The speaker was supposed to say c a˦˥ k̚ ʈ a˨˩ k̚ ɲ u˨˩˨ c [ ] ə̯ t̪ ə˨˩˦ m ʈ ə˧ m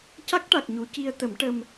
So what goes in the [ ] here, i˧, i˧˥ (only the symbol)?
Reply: i˧